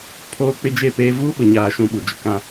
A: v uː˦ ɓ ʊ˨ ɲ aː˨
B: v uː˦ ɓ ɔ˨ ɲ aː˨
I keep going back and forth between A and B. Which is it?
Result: A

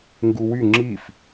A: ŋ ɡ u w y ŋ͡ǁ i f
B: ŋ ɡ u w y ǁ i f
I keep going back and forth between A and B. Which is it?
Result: A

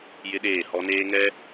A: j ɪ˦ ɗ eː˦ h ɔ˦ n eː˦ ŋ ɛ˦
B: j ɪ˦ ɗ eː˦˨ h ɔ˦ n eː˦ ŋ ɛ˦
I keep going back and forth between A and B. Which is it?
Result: B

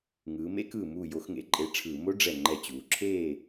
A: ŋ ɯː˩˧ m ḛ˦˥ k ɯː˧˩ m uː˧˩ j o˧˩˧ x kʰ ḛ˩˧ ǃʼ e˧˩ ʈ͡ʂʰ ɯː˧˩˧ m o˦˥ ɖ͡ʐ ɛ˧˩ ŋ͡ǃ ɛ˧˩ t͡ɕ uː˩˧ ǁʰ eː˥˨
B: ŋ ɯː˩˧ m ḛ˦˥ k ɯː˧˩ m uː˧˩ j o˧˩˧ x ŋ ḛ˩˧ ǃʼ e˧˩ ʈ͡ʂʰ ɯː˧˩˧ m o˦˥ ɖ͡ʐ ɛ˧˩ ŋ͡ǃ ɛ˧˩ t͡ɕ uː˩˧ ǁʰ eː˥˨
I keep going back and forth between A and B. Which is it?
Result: B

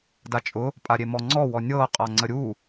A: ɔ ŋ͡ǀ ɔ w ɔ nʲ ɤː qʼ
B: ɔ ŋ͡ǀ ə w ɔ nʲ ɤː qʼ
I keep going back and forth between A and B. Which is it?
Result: A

